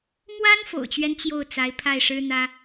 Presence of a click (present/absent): absent